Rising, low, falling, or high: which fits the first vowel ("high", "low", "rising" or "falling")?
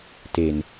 low